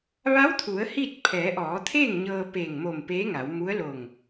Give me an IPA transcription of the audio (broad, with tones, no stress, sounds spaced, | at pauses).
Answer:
ʋ a˧˥ w t̪ʰ u˩˧ ə̯ h i˥˨ t̚ pʰ ɛː˩˧ ʔ ɔː˩˧ t̪ʰ eː˥˨ ŋ ɲ ɤː˧ p eː˧˩ ŋ m o˧˩ m p eː˧˥ ŋ a˩˧ w m u˧˥ ə̯ l o˧˩ ŋ